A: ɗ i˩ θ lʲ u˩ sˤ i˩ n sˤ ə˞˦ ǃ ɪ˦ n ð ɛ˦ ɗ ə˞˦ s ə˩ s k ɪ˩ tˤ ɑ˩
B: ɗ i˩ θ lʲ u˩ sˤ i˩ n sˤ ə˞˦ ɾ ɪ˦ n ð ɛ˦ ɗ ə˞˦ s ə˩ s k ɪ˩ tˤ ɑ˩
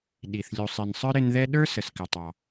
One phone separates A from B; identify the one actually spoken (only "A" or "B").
B